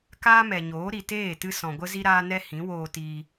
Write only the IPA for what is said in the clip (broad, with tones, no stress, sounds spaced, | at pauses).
k aː˦ m ɛ˨ ɲ oː˨˦ ɾ i˨ t eː˦˨ t ɨ˧ s ɔ̃˨ ɡʷ ə˦ z i˦ ɾ aː˦ n ɛ˦ h ĩ˨˦ w oː˧ t iː˧